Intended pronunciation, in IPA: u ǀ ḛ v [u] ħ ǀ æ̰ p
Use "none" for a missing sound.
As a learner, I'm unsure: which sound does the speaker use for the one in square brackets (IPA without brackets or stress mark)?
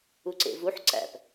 u